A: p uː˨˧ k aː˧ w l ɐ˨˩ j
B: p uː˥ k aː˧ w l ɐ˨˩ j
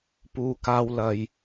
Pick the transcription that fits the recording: A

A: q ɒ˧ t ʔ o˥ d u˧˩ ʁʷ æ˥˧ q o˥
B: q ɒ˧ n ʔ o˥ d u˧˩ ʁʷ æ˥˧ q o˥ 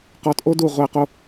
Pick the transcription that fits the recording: A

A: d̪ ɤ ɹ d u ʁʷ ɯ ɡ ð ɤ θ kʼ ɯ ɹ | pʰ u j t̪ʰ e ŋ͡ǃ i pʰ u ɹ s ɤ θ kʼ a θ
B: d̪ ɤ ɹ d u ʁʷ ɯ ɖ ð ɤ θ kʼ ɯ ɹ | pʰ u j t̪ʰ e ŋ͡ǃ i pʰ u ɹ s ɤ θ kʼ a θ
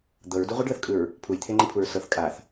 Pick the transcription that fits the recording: B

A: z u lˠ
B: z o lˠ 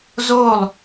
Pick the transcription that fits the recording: B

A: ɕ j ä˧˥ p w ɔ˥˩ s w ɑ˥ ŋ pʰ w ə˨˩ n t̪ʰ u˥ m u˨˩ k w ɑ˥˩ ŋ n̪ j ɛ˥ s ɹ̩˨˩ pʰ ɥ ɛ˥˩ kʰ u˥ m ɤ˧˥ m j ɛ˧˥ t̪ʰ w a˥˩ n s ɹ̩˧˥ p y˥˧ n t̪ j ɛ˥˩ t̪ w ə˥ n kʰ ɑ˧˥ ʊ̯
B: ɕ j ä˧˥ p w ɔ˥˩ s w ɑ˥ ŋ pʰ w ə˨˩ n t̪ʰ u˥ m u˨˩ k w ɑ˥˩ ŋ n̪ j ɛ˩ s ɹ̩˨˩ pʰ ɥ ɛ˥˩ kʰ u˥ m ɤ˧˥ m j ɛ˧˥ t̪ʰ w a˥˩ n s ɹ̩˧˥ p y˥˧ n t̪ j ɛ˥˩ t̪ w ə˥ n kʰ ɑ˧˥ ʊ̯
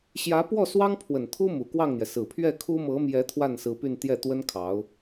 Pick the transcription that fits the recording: B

